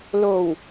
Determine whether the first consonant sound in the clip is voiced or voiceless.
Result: voiced